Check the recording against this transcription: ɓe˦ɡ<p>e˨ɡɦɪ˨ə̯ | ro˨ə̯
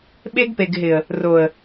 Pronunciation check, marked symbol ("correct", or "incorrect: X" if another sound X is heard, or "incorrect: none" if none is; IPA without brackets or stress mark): correct